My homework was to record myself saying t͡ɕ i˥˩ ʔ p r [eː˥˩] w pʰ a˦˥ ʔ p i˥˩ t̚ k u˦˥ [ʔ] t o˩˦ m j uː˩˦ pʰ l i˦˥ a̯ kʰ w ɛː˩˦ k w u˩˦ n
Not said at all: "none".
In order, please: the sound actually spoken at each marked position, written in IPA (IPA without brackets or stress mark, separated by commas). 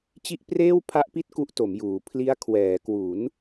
eː˥˩, ʔ